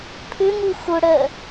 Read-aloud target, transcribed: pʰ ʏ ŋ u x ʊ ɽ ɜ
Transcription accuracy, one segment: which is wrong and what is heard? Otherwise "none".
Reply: none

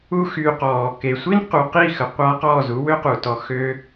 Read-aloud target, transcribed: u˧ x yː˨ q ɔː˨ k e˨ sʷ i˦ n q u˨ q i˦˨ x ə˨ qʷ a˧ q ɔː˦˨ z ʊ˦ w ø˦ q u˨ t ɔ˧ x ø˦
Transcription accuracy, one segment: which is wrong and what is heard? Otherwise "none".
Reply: ʊ˦ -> u˦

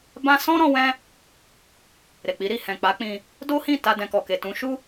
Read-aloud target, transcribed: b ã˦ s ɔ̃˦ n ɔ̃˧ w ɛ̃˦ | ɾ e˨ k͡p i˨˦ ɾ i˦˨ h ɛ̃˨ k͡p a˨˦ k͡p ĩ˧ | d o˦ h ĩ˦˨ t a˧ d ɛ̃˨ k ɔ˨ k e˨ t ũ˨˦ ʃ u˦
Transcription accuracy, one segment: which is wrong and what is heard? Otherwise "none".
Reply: n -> ɾ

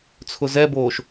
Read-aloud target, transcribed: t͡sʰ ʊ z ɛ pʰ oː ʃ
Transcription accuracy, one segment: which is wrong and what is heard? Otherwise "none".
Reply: pʰ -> b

